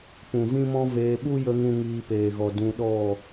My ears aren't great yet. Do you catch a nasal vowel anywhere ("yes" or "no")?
yes